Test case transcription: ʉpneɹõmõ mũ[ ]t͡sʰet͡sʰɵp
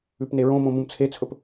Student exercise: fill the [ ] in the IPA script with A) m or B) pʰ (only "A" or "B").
A